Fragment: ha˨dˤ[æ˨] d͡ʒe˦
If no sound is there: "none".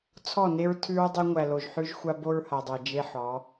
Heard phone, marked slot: æ˨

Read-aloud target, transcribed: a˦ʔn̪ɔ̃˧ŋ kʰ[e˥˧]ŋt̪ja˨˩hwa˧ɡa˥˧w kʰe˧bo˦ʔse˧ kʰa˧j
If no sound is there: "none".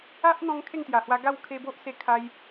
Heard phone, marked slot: e˥˧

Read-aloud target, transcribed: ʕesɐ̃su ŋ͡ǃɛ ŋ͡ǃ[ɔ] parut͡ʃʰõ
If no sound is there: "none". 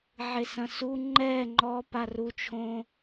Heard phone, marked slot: ɔ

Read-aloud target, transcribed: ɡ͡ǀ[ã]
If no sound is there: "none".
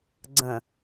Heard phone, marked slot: ə̃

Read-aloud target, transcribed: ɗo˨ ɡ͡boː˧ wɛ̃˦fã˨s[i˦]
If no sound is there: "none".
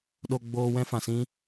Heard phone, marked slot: ĩ˦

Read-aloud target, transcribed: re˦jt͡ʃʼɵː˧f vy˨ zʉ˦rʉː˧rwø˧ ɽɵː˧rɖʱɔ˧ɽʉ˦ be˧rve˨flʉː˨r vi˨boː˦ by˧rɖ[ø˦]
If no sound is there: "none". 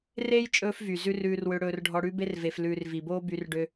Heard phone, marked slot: ø˧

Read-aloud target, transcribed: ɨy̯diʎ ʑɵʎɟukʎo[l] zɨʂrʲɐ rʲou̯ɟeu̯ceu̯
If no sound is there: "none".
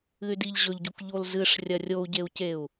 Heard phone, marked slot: l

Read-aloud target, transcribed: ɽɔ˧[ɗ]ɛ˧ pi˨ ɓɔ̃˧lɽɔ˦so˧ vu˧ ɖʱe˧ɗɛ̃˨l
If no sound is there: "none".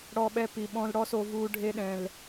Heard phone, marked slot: ɓ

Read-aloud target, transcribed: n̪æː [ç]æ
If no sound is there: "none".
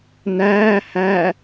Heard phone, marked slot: h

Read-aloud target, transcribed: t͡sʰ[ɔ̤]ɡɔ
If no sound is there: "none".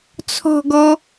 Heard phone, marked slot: ɔ̤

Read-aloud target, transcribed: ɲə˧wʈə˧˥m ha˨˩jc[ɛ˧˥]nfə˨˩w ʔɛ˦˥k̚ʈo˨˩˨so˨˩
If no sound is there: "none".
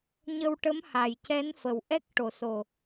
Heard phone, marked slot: ɛ˧˥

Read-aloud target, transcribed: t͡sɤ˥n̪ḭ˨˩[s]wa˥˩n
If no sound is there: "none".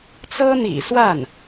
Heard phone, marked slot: s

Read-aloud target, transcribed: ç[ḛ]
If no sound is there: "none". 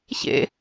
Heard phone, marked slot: ḛ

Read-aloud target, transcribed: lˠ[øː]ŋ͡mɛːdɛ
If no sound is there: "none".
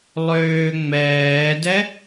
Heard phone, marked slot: øː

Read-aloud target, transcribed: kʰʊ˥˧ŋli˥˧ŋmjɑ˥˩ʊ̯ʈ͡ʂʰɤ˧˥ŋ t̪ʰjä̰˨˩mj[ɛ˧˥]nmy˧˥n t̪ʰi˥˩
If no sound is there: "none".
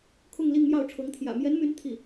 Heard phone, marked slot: ɛ˧˥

